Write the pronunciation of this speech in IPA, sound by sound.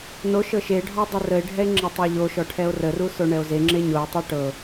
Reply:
n o ʃ ɤ ʃ e ɖʱ ɔ dˤ e r ə e̯ ɖʱ ɛ e̯ ŋ͡ǁ ɤ tˤ ɛ ʎ o ʃ ɔ ʈʰ ɛ o̯ r ə r u s o ɳ ɛ o̯ z e ŋ͡ǁ e ɲ o e̯ tˤ o ʈ ɤ

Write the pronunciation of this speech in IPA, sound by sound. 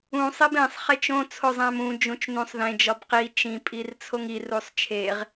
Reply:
ũ sˤ i b ẽ sˤ χ e t͡ʃ õ t͡sʰ o zˤ æ̃ m ũ d͡ʒ ũ t͡ʃ n ũ sˤ ð ẽ d͡ʒ ɒ b q i t͡ʃ ĩ pʼ i r t͡sʰ o ŋ i r u sˤ t͡ʃʰ e ʁ

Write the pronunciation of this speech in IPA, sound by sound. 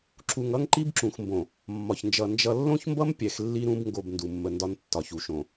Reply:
ǁ u˨ ŋ ʌ˦ ŋ ǃ i˦ b ǁ ũ˨ x m b õ˨ | mː ɒ˨ ç n d͡ʒ ʌ˨ n d͡ʒ ʌ˨ lː õ˦ ç m b ʌ˦ m pʲ ɛ˨ x lː i˦ ɾ ũ˦ b ŋ ɡ o˦˨ b n d u˨ mː ə˨ n d ɒ˦ n tː ɒ˨ ç u˨ ʃ õ˨

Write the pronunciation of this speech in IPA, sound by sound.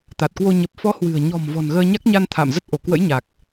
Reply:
t̪ a˨˩ t̚ k w o˧ ɲ ə˨˩ p̚ f ɔ˨˦ h w ɨ̤˨˩ ə̯ ɲ ɔ̤˨˩ m v ɔ̤˨˩ n ɣ əː˧ ɲ a˦˥ k̚ ɲ a˧ n t̪ʰ a̰˧˨ m z ə˦˥ t̚ ʔ o˧˩ k w ə̰˧˥ j ɲ a˨˩ k̚

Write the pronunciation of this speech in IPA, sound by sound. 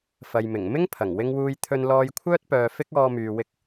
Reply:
f ɐ˨ j m ɪ˨˩ ŋ m ɪ˥ ŋ pʰ ɐ˨˩ ŋ w ɪ˧ ŋ w uː˧ j t̪ʰ ɵ˧ n l ɔː˧ j kʷʰ œː˥ t̚ p œː˨ f ɪ˥ k̚ ɔː˧ m yː˨ w ɪ˧ k̚

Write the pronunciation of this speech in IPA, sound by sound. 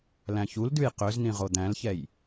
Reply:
l æ̃ ç u l d ʉ j q ø z n ĩ ʁ o d̪ æ̃ l ç ɛ j

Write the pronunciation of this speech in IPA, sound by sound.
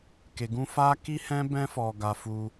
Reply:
k e˧ ɡ ũ˦ f a˦ k i˦ h ɛ̃˦ b ɛ̃˦ f ɔ˧ ɡ a˧ f u˧

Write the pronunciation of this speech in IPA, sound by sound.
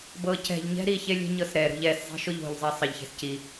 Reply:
b ɤ c ɛ̤ ʎ ɲ ɛ̤ ɾ i ç e lʲ e̤ ɲ ɤ s ɾ ɛ ɾ o̤ ʎ ɛ s zˤ i̤ ʃ o ʎ o̤ ʎ zˤ e sˤ ə ʎ ç e̤ s c i

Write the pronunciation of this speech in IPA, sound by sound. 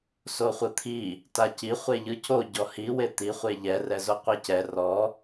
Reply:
s o χʷ ɯ t̪ʰ i | t a c i χʷ e ʎ ɯ c o ɟ ɔ h i w e t̪ i χʷ e ʎ ɛ r ɛ z o qʷ e c ɛ r ɔ

